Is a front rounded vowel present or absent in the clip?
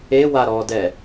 absent